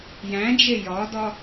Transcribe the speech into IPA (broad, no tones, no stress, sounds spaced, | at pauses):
j æ̃ d͡ʒ e j ɒ d ɒ